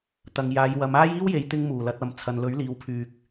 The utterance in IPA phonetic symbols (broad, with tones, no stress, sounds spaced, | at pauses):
t̪ ɐ˨ ŋ j aː˨˧ j w ɐ˨˧ m aː˥ j iː˥ w j e˨˧ j t̪ ɪ˧ ŋ m uː˨˩ l ɐ˧ t̚ ɐ˨ m t͡sʰ ɐ˨ n l ɵ˨˥ ɥ l iː˨˧ w pʰ yː˨ k̚